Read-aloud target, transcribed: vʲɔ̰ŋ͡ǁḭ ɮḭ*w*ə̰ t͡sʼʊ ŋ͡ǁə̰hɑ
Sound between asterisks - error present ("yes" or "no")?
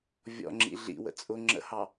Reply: no